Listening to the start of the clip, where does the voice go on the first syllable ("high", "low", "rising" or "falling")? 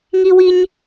high